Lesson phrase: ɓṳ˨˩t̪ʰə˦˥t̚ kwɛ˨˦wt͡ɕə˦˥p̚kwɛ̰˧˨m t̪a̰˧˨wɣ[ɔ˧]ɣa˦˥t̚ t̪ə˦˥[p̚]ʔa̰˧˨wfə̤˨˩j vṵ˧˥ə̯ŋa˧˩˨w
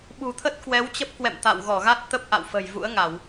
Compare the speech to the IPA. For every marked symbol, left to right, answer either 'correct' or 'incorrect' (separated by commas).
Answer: incorrect, correct